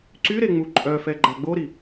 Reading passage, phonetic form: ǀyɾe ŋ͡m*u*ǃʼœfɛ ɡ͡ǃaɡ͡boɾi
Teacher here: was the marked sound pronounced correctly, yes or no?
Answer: yes